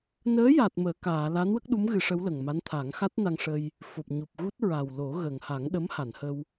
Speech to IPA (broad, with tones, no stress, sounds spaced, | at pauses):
n əː˧˥ j a˨˩ t̚ m əː˨˩˨ k aː˨˩˨ l a˧˥ n w ə˦˥ k̚ ɗ u˧˥ m ɣ ɨ˨˩˦ ʂ ə˧˥ w l ə˨˩ ŋ m a˧˥ n t̪ʰ a˨˩˦ ŋ x a˦˥ t̚ n a˧ ŋ ʂ ə˧ j | f o˨˩ p̚ ɲ u˨˩ p̚ ɣ u˦˥ t̚ ɹ a˨˩ w l o˨˩˦ ɣ ə˨˩ ŋ h a˨˩˦ ŋ ɗ ə˧˥ m h a˨˩˨ n h ə˧ w